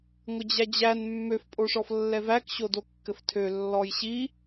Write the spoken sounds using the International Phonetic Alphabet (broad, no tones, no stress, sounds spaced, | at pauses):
ŋʷ ɘ d͡ʑ æ d͡ʑ æ n mː ø f pʼ o ʂ ɔ f lː ɛ v æ k ɕ o d o kː ɘ f tʰ ø lː ɔ j ɕ i